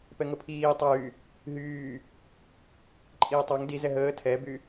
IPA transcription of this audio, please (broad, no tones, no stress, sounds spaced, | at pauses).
p ɛ ŋ ə pʰ iː tˤ ɑ j y | ɦ yː | ǃʼ iː tˤ ɑ ŋ d i z ɛ ɦ əː tʰ ɛ b y